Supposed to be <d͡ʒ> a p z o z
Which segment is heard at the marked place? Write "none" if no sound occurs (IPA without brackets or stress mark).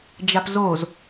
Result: d͡ʒ